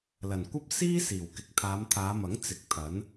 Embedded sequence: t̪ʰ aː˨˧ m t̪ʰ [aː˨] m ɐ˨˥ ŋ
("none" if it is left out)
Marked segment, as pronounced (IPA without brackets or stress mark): aː˨˧